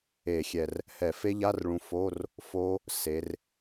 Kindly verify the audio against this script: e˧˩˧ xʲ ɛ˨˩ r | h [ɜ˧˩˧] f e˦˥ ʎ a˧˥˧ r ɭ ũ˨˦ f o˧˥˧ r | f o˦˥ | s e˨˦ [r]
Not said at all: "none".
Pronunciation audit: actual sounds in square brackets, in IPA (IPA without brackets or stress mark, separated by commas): ɛ˧˩˧, r